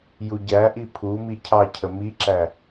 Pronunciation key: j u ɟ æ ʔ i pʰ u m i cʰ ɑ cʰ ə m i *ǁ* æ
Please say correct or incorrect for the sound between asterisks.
correct